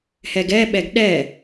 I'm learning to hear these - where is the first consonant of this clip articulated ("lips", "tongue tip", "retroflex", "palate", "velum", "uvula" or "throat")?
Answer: throat